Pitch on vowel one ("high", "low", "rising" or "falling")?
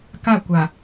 falling